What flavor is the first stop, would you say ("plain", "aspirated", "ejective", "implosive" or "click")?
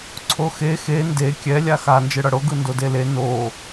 click